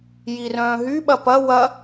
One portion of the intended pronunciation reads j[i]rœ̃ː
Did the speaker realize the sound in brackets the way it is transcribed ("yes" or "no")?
yes